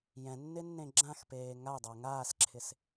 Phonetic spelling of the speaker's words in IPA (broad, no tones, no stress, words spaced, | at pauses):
jɛ̃nːɪnːẽ ɡ͡ǁãxpeː ŋajdˤaʊ̯ ŋaːsǁʰɪs